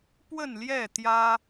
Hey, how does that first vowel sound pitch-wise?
falling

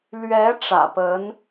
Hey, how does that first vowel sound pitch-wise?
rising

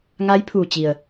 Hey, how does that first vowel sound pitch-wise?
rising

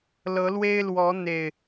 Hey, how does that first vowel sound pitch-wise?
rising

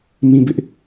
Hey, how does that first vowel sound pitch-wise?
high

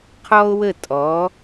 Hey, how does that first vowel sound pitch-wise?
high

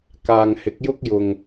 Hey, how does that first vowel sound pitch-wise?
low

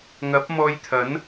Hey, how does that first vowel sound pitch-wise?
rising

